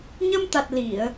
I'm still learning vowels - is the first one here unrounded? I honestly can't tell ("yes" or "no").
yes